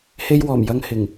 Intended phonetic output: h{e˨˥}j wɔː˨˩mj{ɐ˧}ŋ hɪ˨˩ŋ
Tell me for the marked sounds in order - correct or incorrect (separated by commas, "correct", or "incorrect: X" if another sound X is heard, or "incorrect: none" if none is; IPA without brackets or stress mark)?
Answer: incorrect: e˧, correct